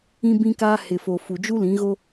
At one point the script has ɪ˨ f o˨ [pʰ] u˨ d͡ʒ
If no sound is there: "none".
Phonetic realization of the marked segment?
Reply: f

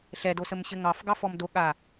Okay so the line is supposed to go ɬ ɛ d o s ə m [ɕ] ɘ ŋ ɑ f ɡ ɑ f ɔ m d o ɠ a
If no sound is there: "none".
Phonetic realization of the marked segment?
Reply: ɕ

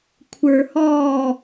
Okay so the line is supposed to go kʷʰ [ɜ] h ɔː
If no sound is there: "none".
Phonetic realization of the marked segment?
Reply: ə˞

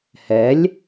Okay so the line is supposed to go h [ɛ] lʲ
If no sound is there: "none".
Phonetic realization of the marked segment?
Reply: ɛ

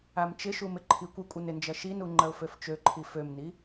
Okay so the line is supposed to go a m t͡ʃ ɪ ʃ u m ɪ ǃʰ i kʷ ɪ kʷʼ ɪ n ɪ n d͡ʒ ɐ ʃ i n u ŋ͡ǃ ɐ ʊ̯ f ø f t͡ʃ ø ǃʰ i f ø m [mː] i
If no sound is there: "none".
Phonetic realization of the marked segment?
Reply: n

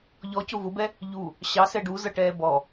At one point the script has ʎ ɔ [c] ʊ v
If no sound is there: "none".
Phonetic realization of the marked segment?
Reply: c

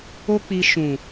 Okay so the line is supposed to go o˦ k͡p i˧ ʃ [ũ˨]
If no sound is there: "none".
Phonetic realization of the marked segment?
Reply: ũ˨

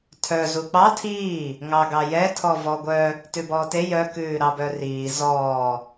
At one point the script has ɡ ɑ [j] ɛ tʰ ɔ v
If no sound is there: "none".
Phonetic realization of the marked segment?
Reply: j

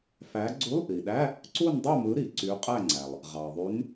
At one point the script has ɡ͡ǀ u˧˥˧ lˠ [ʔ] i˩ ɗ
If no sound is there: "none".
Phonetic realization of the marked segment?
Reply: ʔ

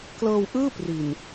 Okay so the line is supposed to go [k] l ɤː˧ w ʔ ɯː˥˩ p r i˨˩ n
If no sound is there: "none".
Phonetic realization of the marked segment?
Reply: k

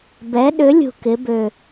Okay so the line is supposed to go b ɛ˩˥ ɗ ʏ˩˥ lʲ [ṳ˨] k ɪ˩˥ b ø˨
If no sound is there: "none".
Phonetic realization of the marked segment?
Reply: ṳ˨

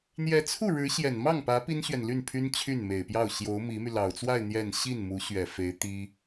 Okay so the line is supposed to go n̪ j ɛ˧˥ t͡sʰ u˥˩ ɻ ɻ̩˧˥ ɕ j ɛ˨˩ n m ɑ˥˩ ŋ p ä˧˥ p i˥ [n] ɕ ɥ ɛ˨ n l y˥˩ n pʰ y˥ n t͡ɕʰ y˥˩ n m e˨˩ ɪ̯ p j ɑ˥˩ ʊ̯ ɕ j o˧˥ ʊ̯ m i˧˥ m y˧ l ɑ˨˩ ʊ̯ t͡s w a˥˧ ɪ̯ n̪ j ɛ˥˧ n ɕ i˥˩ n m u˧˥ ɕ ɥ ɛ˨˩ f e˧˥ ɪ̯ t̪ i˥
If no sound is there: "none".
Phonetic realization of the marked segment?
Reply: n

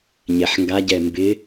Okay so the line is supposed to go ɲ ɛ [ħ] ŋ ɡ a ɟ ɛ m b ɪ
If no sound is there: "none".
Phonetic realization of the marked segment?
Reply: ħ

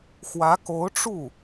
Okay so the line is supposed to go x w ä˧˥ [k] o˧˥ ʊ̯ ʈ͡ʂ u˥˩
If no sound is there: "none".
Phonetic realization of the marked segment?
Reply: k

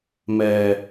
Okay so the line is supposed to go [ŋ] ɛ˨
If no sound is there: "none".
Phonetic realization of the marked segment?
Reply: m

